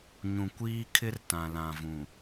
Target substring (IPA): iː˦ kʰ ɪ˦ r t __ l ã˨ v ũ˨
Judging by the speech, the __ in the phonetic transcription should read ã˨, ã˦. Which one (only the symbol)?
ã˨